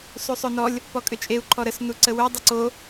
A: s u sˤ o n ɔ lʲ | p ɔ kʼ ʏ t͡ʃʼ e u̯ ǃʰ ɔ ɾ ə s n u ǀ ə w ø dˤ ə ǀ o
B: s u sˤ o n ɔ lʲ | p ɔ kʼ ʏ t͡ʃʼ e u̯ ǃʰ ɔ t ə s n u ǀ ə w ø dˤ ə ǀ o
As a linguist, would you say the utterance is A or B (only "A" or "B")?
A